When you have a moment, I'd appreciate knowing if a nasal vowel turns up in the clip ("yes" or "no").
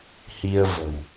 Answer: no